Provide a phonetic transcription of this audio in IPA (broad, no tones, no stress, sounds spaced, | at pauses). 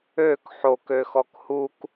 ø k ħ o k ø x ɔ k h u k